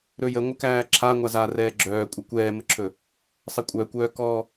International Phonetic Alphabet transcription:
ɾ ɵ j ə ŋʷ ə k æː ǁʰ a ŋʷ a z a r ɛː ɡ͡ǁ œː kʷʼ ə kʷ ɛː m ə ǁʰ ɵ | sˤ ɛ kʷʼ œː kʷ œː k ɔː

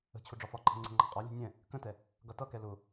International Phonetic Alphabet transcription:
ə̤ t͡ɕʰ ʊ ɖ͡ʐ ɒ f ɒ ǃʰ ɛ̤ ŋ͡ǀ ɛ̤ ŋ͡ǃ ɑ̤ qʼ ɒ lʲ ṳ nʲ ɛ̃ | k ə̃ t ɛ | ɡ ʌ t ʌ k ɛ l ʊ

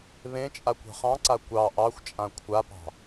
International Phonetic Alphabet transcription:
β ẽ t͡ʃʼ a kʷ ɑ̤ χ ɑ̃ ǀ a kʷ ɑ ʔ ɑ xʷ t͡ʃʼ ã kʷʰ a p ɑ̤

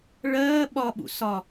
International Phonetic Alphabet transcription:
ɭ ɜː ɓ ɒ ɓ ṵ s ɒ

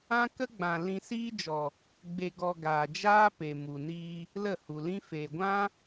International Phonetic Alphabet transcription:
ã˦ k ə˦ ɡ͡b ã˨ l ĩ˧ s iː˦ d͡ʒ ɔ˨ | ɡ͡b e˧ ɡ ɔ˧ ɡ aː˨ d͡ʒ aː˦ p e˨ m u˨ n iː˧ | l ə˦˨ h u˨ l ĩ˦ f e˨ ɡʷ ã˦

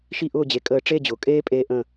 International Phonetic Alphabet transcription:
ʃ i˥˨ ʔ ʊː˥˨ d͡ʑ e˩˧˩ kʼ əː˧˩ ʈ͡ʂ e˥˨ d͡ʑ ʊː˩ kʼ eː˥ pʼ eː˧ ʔ ə̃˧˩

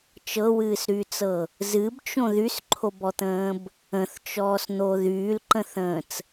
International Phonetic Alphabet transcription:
t͡ʃ ɤ w ɨː s ɾ yː t͡s ɤ | z ɨ b t͡ʃ õ ð y s ǃʰ o b ɔ t̪ ə̃ː b | ə̃ θ t͡ʃ ɔː s n̪ o ð yː l ǃ ə̃ θ ə̃ː t͡s

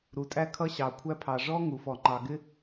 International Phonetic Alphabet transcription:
ɾ u˩ tʼ æ˥ kʰ ʌ˥ ɕ ɑ˩ kʷʰ æ˥ pʰ ɑ˩ ʐ ɔ˥ ŋ u˩ f ɔ˩ ŋ͡ǃ ɑ˩ ɡ ɪ˥

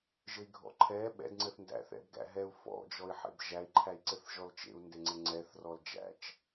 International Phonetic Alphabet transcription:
ʒ ɘ i̯ ɡʱ ɔ̰ ǃʰ ɛ ɓ ɛ̰ d ŋ͡ǀ ɘ θ n d æ̰ θ ɛ̰ b ɡ æ̰ ɦ ɛ u̯ f ɔ̰ d͡ʒ ɔ i̯ ħ ḛ b ʒ æ i̯ ǃʰ æ i̯ ǀ ɘ θ ʒ ɔ l t͡ʃ ḛ u̯ n d e ŋ͡ǀ ɘ ŋ͡ǀ ɛ θ r ɔ l d͡ʒ æ̰ t͡ʃ

